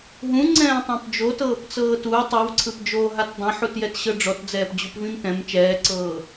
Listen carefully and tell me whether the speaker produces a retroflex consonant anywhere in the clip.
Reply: yes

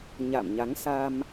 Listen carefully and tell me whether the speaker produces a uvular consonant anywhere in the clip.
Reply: no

